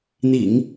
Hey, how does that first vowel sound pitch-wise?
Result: low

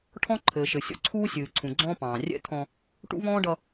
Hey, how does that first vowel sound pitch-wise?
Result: high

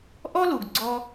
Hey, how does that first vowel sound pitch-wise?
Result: high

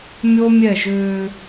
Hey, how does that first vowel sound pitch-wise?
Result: high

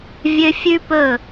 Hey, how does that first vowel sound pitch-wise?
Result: high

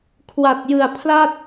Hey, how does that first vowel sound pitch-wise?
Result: low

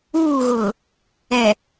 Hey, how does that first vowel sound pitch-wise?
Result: falling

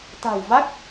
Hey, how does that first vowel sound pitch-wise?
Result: low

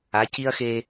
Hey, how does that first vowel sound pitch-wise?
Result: rising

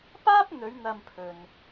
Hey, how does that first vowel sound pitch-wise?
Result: high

